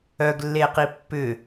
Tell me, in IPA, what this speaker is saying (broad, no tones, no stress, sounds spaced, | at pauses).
œ ɡ lː e q i pː ʏ